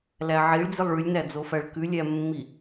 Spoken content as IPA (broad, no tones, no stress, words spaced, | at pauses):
læʕiɭd͡zilˠ ɭʉlʲnæd͡zofæɭ kʉlʲæmːi